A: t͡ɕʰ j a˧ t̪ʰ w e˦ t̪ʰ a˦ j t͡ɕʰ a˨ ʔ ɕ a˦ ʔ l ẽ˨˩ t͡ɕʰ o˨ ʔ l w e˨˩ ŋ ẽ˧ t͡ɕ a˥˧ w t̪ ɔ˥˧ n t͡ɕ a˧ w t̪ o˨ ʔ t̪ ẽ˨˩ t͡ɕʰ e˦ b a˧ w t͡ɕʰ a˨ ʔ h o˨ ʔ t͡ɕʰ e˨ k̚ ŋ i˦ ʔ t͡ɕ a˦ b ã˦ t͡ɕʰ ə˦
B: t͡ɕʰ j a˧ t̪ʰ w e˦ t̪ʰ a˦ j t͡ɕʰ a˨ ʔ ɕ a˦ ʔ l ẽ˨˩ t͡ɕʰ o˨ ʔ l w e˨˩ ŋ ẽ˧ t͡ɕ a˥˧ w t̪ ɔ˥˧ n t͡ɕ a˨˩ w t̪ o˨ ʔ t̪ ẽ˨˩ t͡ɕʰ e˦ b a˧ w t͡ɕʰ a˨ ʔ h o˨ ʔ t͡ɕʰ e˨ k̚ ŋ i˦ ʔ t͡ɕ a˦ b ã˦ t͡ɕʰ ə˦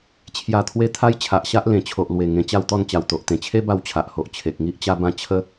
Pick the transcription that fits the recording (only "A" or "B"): B